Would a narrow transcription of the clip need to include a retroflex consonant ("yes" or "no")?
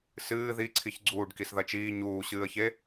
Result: yes